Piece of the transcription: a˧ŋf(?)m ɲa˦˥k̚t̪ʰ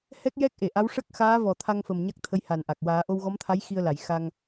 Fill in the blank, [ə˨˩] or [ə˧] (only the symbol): ə˨˩